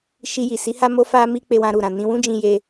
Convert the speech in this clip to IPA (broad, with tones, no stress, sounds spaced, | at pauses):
ʃ i˧ j i˨ s i˨˦ h a˦ m o˧ f a˧ m i˧ k͡p e˧ w ã˧ ɾ u˨ ɾ ã˨ n ĩ˧ w ũ˦ d͡ʒ ĩ˧ j e˧